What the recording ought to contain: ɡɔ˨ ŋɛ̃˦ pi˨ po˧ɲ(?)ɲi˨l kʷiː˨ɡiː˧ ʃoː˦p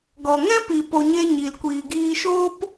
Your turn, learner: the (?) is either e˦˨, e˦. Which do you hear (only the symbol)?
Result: e˦